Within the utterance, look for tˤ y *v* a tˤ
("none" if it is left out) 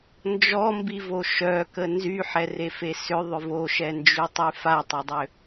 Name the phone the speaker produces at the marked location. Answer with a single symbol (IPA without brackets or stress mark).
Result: f